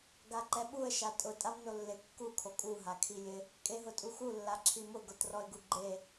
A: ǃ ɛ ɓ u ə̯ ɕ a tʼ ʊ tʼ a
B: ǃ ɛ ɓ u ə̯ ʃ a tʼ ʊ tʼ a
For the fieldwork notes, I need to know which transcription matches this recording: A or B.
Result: B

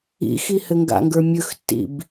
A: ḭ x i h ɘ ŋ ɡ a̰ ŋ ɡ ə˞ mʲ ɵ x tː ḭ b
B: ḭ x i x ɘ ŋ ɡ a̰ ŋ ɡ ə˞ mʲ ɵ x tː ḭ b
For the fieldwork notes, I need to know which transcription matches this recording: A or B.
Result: A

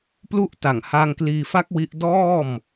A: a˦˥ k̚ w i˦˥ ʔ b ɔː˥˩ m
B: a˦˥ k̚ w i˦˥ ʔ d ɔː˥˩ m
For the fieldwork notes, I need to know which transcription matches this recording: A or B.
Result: B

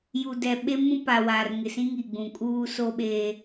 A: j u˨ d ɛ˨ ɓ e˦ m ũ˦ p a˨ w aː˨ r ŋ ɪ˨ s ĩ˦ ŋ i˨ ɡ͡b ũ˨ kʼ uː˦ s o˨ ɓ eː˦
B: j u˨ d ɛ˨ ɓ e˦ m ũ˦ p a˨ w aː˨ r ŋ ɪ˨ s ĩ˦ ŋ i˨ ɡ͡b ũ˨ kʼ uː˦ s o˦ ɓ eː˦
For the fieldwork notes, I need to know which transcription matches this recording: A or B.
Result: B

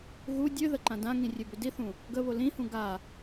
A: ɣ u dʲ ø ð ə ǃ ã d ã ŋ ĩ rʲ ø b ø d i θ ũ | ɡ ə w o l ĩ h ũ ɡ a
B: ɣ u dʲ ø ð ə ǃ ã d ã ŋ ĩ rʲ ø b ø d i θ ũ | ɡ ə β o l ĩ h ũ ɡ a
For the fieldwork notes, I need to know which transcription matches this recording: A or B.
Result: B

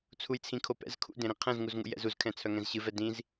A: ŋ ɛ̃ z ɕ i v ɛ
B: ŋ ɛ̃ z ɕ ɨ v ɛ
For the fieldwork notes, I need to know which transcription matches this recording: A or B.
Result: B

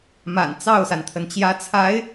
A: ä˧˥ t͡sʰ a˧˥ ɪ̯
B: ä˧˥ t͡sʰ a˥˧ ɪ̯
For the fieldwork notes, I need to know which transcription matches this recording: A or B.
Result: A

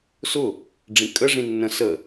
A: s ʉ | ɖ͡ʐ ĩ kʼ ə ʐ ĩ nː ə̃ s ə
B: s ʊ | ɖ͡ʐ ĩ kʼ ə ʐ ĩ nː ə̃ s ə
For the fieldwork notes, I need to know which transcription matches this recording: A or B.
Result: B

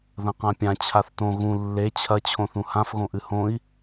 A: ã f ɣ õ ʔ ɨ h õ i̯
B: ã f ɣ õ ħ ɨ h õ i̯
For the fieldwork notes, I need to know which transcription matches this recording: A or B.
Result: A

